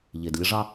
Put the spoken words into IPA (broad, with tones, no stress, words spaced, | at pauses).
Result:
ʎe˨dlʲə˦ʐɑ˦